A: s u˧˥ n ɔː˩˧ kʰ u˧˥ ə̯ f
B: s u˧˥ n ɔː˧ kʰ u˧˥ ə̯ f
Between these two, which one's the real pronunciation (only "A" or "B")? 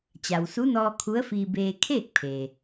B